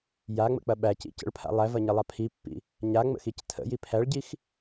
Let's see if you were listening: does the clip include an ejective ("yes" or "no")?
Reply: no